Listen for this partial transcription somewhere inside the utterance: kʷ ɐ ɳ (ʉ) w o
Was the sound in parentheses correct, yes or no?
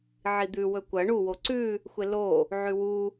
no